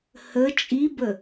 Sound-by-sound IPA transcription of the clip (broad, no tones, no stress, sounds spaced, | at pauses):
h ə t͡ʃʼ i b ə